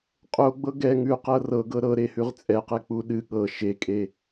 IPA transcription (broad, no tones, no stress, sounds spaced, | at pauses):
qʼ o ɡ͡b ɤ ɡ ɛ ŋ ʉ q ɤ r ɤ ɡ ɤ ɾ ɤ ɾ e h ʉ ʁ t͡sʼ ɛ q ɛ k͡p u ɗ ɨ ɠ ɤ ʃ e kʼ e